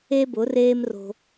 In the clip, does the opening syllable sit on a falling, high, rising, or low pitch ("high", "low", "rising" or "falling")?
high